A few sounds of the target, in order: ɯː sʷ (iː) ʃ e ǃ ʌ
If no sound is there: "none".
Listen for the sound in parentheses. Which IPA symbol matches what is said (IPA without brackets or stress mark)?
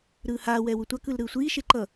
iː